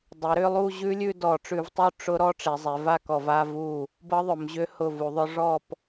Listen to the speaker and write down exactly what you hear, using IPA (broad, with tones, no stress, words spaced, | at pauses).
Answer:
dˤe˩˧ɾʏ˥˧ lˠu˥˧ʑʉ˦˥lʲʉ˥˧ dɔ˧˩˧ʈ͡ʂʉ˧˩˧vtˤu˥˧ ʈ͡ʂʊ˦˥ ɾɔ˦˥ʈ͡ʂe˩˧zˤe˩˧ va˥˧kɔ˧˩˧va˥˧ vu˥˩ | bɤ˦˥ðˤʊ˩˧m ʑʏ˦˥hʊ˥˩vu˧˩˧ðˤʊ˦˥ ʐɔ˥˧p